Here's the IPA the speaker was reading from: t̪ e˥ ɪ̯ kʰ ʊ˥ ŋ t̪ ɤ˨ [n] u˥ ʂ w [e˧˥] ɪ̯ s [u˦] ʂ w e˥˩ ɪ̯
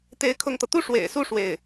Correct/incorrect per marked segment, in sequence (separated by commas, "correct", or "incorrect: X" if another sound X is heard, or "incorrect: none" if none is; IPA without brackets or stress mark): incorrect: t̪, incorrect: ḛ˨˩, incorrect: u˥˧